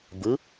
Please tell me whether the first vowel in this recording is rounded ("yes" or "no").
no